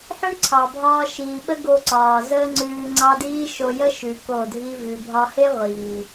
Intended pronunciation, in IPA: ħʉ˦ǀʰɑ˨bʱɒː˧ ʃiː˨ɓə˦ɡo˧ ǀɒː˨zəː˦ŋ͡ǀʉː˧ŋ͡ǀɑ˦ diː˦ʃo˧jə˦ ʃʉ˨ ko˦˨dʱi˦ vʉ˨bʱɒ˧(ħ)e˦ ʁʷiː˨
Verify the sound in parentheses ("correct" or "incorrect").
incorrect